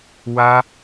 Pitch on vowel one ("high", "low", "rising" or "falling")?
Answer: high